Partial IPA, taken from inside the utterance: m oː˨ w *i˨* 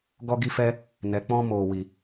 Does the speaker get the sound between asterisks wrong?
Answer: no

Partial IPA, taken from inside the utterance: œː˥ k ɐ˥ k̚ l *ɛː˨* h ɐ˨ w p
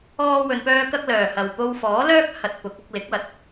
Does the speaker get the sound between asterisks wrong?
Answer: yes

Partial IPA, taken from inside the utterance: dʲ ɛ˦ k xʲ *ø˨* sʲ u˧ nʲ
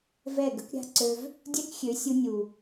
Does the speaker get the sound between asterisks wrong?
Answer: yes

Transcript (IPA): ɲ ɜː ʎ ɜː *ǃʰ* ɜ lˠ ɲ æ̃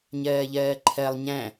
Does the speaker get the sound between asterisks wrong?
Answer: no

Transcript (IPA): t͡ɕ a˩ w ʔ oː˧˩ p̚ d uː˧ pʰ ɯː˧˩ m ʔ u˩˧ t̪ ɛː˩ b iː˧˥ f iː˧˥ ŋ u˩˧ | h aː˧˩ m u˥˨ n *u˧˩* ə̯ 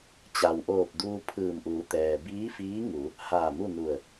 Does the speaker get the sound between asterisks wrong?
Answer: no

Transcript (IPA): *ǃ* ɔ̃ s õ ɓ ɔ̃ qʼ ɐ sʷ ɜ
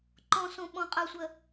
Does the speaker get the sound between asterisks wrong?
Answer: no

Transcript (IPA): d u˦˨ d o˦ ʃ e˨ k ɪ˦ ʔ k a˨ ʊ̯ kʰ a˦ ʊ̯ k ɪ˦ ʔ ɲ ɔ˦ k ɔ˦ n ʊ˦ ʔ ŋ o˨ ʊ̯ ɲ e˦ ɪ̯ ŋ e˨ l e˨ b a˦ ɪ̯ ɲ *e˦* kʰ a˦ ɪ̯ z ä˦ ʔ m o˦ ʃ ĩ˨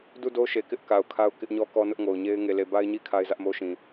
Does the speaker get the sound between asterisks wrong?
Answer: yes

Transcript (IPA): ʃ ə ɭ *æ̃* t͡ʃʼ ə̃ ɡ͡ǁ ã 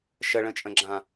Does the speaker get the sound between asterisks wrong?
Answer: yes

